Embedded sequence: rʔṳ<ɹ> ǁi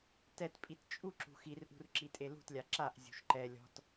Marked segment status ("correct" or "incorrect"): incorrect